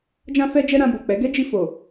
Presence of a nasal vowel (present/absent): present